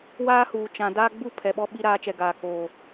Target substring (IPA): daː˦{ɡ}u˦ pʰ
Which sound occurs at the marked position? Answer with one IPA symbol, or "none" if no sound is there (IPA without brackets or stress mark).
ɡ͡b